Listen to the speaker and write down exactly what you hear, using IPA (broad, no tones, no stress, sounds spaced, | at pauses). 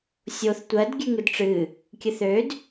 sʲ o θ tʷ ɜ d ɡʲ ʉ ŋ ɨ d ʈ͡ʂ ɨ | kʲ ɨ θ ø d